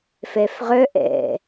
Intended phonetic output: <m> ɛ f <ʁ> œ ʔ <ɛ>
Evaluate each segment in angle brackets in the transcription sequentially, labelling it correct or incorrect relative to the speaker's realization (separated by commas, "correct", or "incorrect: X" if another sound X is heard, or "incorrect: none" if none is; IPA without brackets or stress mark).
incorrect: f, correct, incorrect: ɛ̰